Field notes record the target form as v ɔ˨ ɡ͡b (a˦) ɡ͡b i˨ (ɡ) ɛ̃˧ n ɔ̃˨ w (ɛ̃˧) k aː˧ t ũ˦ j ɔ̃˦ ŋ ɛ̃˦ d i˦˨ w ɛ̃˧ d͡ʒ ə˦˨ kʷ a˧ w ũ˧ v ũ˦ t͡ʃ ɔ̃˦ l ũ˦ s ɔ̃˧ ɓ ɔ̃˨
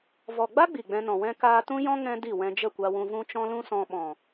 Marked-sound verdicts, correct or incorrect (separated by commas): correct, incorrect, correct